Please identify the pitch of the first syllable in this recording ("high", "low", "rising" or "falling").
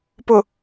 low